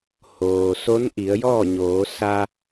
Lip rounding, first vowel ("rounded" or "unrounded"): rounded